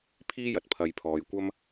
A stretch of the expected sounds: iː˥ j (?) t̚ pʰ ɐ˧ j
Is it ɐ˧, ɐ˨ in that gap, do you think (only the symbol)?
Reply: ɐ˧